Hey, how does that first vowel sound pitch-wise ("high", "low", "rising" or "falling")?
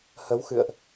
rising